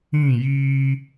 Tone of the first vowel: falling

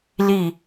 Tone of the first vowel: falling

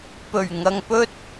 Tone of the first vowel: low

